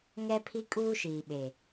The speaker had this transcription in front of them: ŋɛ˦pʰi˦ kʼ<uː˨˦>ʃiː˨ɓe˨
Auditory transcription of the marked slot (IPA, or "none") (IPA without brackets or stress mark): uː˦